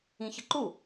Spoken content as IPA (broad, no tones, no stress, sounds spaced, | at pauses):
ĩ ç ə ǃ u